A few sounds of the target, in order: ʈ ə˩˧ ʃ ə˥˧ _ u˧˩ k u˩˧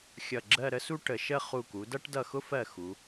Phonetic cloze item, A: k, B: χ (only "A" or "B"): B